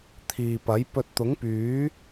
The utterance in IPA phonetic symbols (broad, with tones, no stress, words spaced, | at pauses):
t̪ʰiː˨pɐ˨˥j pɵ˧t̚t̪ʊ˨˥ŋpyː˨˥